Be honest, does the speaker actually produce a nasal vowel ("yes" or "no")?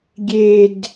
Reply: no